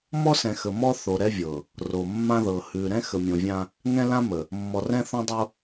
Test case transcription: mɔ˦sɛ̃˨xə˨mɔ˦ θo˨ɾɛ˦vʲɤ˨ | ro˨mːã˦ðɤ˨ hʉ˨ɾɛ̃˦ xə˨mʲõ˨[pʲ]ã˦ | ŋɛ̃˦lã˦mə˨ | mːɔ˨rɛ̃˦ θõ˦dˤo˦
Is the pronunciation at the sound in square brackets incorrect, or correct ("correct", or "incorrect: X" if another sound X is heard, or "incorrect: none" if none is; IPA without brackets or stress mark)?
incorrect: vʲ